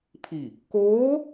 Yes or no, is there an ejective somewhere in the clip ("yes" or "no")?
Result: no